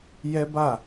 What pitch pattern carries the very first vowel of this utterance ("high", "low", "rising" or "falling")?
high